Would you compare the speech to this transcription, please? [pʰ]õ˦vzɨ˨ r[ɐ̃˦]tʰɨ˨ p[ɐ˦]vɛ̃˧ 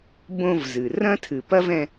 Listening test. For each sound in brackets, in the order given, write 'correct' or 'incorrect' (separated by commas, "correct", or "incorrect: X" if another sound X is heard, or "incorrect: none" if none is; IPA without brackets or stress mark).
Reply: incorrect: b, correct, correct